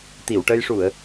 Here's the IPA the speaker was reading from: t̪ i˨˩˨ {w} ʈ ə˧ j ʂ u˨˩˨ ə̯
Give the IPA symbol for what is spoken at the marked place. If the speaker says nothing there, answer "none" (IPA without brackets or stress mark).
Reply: w